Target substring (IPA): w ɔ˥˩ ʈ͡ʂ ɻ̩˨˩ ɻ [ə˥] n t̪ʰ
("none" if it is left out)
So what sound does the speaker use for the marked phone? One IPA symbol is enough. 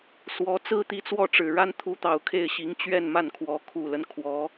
a˥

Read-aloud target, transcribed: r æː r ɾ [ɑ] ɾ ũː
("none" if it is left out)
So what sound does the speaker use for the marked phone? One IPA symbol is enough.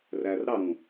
ɑ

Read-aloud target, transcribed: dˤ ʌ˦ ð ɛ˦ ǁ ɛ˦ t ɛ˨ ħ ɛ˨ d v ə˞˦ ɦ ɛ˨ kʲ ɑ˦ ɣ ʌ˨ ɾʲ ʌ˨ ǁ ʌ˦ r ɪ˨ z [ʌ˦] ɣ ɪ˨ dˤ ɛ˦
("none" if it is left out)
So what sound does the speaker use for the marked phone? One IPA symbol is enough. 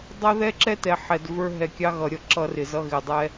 ʌ˦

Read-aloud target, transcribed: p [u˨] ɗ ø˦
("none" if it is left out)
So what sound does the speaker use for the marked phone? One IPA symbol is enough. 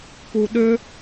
u˨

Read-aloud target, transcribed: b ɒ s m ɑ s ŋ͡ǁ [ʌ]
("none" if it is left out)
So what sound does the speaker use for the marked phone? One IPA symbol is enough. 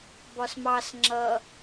ʌ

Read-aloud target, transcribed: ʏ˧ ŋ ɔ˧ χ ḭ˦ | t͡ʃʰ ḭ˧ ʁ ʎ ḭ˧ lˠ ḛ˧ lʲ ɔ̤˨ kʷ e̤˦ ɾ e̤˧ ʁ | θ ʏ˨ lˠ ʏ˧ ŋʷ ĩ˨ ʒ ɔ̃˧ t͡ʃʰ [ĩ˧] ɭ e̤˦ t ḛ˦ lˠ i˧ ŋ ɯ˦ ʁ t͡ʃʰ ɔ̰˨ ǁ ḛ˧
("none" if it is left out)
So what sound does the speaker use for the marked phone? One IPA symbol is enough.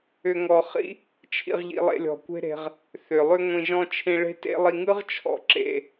ĩ˧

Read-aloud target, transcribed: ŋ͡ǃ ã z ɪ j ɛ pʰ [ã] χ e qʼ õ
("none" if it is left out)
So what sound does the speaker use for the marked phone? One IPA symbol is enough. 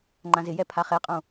a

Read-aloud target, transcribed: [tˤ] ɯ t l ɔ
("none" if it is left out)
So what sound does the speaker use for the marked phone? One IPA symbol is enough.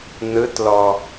n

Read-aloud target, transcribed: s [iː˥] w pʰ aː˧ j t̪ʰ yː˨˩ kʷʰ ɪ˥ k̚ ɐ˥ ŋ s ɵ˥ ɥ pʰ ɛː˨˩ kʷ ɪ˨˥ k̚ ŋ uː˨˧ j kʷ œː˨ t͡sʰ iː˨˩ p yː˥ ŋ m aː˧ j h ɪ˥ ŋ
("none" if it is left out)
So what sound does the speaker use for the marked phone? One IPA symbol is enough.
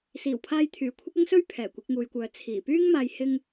iː˨˩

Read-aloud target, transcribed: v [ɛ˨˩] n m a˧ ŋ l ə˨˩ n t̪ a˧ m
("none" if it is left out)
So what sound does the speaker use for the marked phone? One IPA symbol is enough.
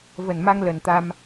ə˨˩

